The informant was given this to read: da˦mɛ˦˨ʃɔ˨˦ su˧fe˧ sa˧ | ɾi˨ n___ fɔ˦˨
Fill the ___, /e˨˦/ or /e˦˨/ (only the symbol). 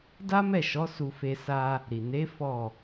e˨˦